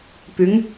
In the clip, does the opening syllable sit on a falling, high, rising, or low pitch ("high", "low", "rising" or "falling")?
rising